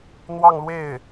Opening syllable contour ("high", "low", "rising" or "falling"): falling